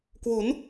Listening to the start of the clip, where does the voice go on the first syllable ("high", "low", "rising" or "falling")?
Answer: rising